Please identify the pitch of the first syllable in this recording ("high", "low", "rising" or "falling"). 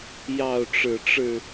falling